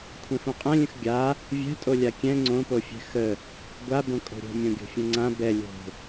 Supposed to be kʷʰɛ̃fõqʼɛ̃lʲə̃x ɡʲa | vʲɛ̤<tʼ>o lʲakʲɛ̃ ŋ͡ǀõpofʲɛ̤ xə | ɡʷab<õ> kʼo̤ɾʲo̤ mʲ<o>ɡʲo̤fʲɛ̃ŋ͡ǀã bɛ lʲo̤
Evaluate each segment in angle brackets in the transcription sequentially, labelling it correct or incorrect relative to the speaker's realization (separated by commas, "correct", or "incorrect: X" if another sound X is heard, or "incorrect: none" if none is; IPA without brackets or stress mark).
correct, correct, incorrect: õ